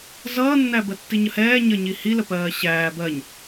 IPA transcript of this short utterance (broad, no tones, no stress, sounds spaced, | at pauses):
z ʌː nː æ b ɜ tː i ɲ ə h ɛː ɲ ə ɲ i h i l ə p ɜː ɕ æː b ɜ ɲ